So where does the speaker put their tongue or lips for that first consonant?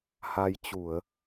throat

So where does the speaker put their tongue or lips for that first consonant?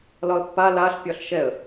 tongue tip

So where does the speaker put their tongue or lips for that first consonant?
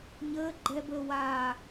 palate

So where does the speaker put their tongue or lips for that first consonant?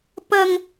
lips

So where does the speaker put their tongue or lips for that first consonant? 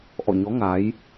throat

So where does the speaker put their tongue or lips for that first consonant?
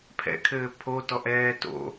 lips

